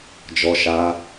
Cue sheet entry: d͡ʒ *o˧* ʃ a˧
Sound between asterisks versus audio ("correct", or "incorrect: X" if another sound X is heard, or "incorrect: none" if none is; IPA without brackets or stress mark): incorrect: ɔ˧